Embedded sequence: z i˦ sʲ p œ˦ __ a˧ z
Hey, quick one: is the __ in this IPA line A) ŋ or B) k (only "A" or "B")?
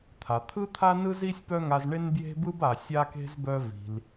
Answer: A